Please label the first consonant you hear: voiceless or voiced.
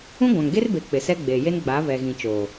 voiced